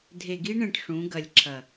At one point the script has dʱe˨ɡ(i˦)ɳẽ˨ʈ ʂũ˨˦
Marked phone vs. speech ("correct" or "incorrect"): correct